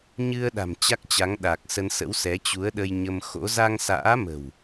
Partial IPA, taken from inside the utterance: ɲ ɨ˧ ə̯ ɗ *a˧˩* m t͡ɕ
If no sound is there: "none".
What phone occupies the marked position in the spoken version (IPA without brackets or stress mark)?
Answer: a̤˨˩